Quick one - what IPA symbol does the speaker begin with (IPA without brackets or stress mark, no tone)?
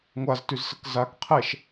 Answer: ŋʷ